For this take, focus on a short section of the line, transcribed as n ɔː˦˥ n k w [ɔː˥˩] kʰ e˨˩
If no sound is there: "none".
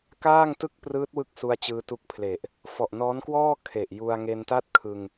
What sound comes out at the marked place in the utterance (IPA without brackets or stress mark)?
ɔː˥˩